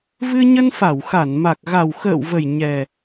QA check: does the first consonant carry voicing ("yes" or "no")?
yes